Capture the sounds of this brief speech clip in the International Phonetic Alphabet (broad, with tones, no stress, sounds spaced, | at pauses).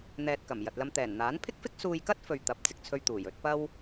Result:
n̪ ɛː˨ t̚ k ɐ˨˩ m j ɐ˨ t̚ l ɐ˧ m t̪ ɛː˨˩ n n̪ aː˨˥ n pʰ ɪ˥ k̚ f ɪ˥ k̚ s uː˧ j k ɐ˥ t̚ f ɵ˨ ɥ t̪ ɐ˨˥ p̚ t͡s ɪ˨ k̚ t͡sʰ ɵ˧ ɥ t̪ uː˨˩ j ɵ˨˥ t̚ p ɐ˥ w